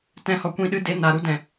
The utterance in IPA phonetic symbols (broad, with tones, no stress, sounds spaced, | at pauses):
t ɛ̃˧ h ɔ˨ kʷ ĩ˦˨ ɗ ɨ˦ d e˨˦ n a˨ ɾ u˦ d ɛ̃˨